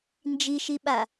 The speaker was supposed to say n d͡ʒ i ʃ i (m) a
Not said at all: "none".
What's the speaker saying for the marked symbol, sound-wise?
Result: ɓ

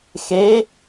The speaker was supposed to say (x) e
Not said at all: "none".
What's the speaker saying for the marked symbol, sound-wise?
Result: x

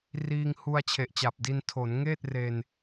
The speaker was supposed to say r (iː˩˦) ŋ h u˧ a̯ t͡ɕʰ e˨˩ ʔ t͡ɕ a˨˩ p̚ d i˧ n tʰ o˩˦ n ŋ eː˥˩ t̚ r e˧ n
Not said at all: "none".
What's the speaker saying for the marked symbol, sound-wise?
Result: iː˧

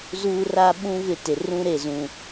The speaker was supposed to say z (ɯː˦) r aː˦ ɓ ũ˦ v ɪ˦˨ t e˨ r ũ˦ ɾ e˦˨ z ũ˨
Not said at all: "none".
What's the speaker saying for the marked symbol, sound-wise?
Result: uː˦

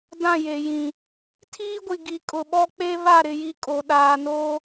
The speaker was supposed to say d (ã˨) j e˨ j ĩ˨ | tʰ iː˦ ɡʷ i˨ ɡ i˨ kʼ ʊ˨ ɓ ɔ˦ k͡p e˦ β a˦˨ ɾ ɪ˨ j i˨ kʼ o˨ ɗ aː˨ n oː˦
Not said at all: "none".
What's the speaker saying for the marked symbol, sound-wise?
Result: ã˦˨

